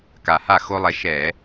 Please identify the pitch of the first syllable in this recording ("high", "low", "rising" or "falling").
low